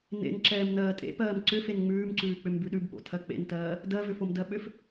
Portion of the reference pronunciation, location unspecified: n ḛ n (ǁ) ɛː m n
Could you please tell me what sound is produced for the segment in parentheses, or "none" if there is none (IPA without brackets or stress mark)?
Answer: ǁ